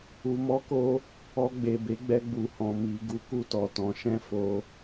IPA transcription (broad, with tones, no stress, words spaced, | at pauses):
u˨mɔ˨˦ko˧ | ɔ˧ɡ͡be˨be˨˦ɡ͡bɛ˧ ɡ͡bu˨hɔ̃˨ mi˨ ɡu˨˦ku˧ tɔ˨tɔ̃˨˦ ʃɛ̃˦˨fo˧